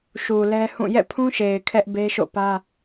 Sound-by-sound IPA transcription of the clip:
ʃu˨lɛ˦hũ˦˨ jɛ̰˦˨pʰũ˦ʃe˨ɪ̯ kʰɛ˦ʔbe˦ʃo̰˦˨pä˦

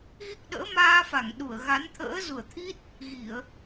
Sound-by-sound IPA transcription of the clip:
ɣi˦˥k̚ɗə̰ː˧˥ maː˧fa˧˩ŋɗu˧˩ə̯ ɣa˨˦nt̪ʰə̰ː˧˥ zu˧˩ə̯t̪ʰi˦˥t̚ | ɣi˧˩˨ə̯

